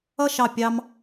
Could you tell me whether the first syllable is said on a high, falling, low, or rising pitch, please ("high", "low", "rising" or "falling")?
falling